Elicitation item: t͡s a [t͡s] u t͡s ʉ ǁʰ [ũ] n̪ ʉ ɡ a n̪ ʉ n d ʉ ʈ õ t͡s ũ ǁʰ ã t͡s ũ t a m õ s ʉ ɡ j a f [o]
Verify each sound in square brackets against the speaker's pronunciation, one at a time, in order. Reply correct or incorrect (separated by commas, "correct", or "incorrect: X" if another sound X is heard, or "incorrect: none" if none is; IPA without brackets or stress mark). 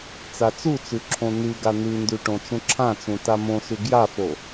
correct, incorrect: õ, correct